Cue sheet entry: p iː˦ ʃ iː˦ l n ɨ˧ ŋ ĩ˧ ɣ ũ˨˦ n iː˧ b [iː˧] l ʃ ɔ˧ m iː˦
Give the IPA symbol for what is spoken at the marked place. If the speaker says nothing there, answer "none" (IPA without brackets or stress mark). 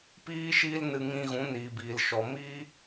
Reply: iː˧